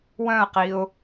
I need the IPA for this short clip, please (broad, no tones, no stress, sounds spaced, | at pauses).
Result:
w œ̃ ə̯ q i ʊ̯